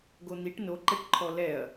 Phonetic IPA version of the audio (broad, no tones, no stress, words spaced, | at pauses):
ɡon̪iʈ noǃɛʈǃʰɔ lɛɐ̯